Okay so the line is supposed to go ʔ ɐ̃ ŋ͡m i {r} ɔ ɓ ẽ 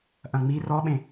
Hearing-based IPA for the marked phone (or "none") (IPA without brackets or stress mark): r